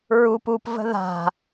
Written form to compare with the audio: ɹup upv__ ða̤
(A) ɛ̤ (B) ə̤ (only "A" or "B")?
B